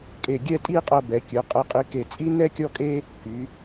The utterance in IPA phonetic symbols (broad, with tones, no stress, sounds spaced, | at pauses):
kʼ e˧˩ ɡʲ ɛ˥˧ tʼ i˥˧ qʼ ɤ˧ b ɛ˩˧ kʲ ɯ˩˧ qʼ ɛ˧ qʼ i˧ k e˧˩ t͡sʼ i˥ n ɛ˥ kʲ ɔ˥ kʼ e˥ | k y˩˧